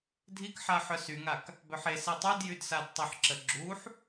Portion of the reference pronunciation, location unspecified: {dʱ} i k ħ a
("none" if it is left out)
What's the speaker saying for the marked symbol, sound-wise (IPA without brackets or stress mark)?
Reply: dʱ